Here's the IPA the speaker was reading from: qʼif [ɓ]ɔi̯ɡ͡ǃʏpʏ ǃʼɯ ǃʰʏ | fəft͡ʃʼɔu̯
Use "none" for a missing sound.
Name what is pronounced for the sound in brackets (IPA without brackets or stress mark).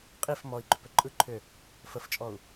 m